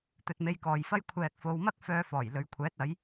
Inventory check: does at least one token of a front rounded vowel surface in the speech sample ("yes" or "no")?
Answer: yes